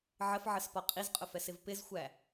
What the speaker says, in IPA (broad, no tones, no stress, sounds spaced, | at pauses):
ʕ ə f ʕ ə s p ɒ qʼ i z qʼ ʊ f ɛ s ɪ v p ɪ z xʷ æ